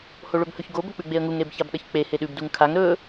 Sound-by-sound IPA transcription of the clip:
h o ɭ ɵ b h ɵ ç ɡ o b ɵ k͡p ʉ ɡ͡b e ə̯ ŋ u ŋ ɾ e b ç a b ɗ ɐ ç k͡p e h e ɗ ʉ b d u ŋ kʰ a ŋ ɾ ɵ

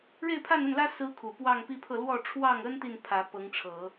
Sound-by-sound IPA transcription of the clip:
ɻ e˥˧ ɪ̯ pʰ a˥˧ n ə˥˩ n l ä˥ s ɹ̩˥ kʰ u˨˩ p w ɑ˥˧ ŋ p i˥˧ pʰ ɤ˥˧ l w ɔ˥˧ ʈ͡ʂʰ w ɑ˥˩ ŋ ə˥ n t̪ i˥˩ n pʰ ä˧˥ p ɤ˧˥ ŋ ʈ͡ʂʰ ɤ˨˩˦

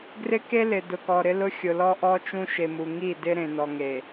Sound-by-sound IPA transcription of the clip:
ɡ r ɪ˦ k e˦ l ɪ˨ d ʊ˨ k ɔ˨ ɾ ɪ˦ l ʊ˦ xʲ ʊ˨ l ɔ˦ ʔ ɔ˦ t͡ʃ ũ˦ ʃ e˨ m u˨ ŋ i˦˨ d ɪ˦ ɾ ẽ˨ n ɔ˨ ŋ e˨

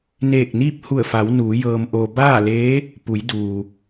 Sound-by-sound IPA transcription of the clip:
n eː˧˩ k̚ n iː˥˨ p̚ h u˧˩ ə̯ f a˩˧ w n uː˩˧ j ɤː˧ m ʔ oː˧ b aː˥˨ l eː˧˥ | p u˩˧ j d uː˩

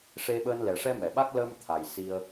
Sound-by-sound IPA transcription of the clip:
ʂ e˧ ɓ əː˧ n l ɛ˨˩ ʂ ɛ˧ m ɛ˨˩˨ ɓ a˦˥ k̚ l əː˧ m t̪ʰ a˨˩ j s i˧ ə̯

